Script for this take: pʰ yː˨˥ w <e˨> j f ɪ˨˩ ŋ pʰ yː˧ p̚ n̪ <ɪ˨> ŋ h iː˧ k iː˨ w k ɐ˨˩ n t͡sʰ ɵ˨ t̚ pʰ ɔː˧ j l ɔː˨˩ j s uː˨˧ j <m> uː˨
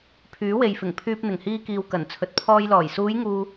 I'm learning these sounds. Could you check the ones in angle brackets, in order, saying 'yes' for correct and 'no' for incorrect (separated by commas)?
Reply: yes, no, no